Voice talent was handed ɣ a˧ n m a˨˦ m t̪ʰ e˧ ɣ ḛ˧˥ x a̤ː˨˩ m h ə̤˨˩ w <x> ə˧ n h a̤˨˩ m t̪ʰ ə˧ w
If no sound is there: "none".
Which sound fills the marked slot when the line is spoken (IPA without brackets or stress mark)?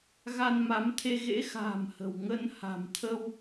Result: ŋ